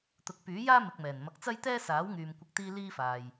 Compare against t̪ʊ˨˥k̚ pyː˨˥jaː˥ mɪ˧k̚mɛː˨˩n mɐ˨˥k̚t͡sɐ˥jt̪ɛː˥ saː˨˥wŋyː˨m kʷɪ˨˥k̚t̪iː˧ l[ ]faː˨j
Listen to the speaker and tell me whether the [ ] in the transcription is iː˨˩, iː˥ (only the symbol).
iː˥